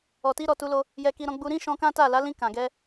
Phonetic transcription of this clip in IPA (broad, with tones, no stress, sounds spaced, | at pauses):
ɔ˨ t i˧ ɾ ɔ˨ t u˧ l o˧ | j ɛ˧ k i˧ ɾ ɔ̃˧ ɡ͡b u˧ ɾ ĩ˦ ʃ ɔ̃˧ k ã˦ t a˦˨ l a˨˦ l ĩ˧ k ã˨ ɡ ɛ˧